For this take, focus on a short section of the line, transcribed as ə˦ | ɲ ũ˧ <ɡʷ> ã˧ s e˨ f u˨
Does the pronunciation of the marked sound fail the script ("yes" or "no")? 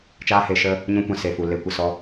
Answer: yes